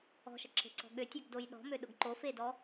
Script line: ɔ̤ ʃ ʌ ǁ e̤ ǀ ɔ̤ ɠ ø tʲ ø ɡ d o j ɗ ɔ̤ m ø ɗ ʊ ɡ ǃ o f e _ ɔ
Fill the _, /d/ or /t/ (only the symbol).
d